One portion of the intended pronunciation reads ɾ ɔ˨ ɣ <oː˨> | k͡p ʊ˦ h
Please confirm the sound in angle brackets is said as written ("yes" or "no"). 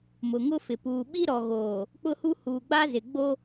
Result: yes